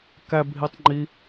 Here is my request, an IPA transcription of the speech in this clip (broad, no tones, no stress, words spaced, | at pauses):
kæbʱitˤ ŋ͡ǃi